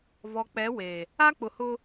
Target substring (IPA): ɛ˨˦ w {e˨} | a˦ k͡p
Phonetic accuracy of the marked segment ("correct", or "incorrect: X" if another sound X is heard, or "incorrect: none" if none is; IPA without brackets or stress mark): correct